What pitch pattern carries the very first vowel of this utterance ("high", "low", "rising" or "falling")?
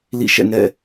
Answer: falling